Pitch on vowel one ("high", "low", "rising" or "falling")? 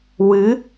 rising